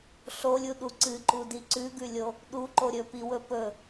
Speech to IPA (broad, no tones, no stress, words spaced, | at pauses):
ɬolʲuɗu ǀɨǃudi ǀʉɡʉlʲo | ɗuǃo ɾʲɵpiwɵ pɵ